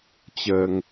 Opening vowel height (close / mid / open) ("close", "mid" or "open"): mid